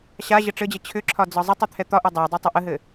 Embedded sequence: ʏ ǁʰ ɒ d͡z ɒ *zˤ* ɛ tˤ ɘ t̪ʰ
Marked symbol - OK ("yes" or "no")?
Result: yes